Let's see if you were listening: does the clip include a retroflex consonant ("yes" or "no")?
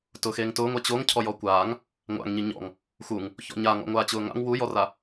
no